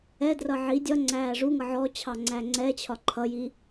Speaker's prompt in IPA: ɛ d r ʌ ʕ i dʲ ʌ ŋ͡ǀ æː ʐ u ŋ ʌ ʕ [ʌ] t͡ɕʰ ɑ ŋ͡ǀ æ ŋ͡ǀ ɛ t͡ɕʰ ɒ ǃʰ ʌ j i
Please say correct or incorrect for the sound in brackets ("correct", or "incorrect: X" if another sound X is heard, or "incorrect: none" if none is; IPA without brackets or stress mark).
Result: incorrect: ɔ